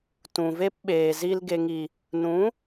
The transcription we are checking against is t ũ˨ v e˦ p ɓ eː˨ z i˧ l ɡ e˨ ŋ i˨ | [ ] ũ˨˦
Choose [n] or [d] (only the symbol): n